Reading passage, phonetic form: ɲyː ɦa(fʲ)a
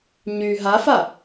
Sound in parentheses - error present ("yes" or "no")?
yes